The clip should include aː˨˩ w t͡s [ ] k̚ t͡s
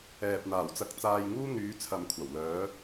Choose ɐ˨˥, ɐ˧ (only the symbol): ɐ˧